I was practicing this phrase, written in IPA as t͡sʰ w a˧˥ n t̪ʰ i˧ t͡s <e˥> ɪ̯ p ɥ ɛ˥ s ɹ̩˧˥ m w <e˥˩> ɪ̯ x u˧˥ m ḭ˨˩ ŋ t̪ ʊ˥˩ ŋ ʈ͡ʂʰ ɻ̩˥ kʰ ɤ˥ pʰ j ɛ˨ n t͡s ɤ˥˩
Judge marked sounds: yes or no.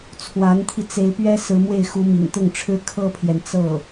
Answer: no, yes

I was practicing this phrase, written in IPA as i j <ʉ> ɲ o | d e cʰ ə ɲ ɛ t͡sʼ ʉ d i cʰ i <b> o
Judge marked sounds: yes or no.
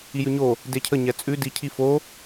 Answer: yes, no

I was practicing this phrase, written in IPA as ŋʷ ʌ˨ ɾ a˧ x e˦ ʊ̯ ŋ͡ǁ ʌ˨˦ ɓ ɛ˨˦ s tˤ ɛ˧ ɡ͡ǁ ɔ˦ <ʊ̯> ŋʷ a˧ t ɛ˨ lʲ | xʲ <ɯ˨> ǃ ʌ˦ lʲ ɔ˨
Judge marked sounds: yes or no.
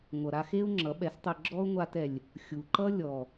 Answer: yes, no

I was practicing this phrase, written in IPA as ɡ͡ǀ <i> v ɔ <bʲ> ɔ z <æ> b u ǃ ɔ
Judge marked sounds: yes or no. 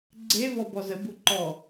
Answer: no, no, no

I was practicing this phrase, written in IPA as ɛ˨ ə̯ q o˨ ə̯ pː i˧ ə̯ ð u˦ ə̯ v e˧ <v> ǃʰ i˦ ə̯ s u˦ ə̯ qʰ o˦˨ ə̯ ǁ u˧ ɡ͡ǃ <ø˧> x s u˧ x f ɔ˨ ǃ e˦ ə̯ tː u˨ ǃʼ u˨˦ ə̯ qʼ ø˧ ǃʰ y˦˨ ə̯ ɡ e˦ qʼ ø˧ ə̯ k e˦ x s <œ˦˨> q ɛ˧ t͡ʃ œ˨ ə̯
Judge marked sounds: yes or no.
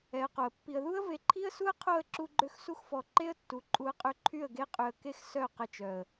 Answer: no, yes, yes

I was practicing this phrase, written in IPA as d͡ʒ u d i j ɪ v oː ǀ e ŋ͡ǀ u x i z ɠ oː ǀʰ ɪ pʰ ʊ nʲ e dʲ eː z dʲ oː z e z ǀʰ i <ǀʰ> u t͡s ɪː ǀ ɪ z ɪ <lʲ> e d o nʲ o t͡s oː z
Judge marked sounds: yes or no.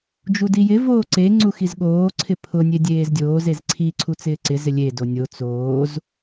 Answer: yes, yes

